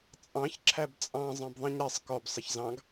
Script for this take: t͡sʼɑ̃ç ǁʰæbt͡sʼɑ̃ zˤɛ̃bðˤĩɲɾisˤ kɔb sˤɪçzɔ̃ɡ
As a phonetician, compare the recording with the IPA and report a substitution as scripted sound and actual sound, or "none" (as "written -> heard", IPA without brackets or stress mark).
ɔ̃ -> ɑ̃